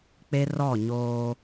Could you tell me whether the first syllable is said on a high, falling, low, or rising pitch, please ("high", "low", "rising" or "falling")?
high